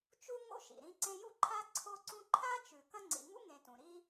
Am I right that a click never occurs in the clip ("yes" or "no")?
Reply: no